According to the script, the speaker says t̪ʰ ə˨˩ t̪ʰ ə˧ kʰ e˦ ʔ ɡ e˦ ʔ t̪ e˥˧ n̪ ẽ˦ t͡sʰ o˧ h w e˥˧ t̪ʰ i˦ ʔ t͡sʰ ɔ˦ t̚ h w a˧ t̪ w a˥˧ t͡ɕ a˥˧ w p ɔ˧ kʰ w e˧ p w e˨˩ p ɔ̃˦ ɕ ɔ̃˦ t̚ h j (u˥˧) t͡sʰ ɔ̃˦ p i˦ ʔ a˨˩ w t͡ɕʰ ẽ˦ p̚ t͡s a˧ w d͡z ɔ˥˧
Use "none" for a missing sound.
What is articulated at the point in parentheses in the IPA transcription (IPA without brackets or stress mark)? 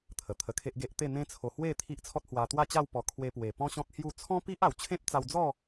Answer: u˥˧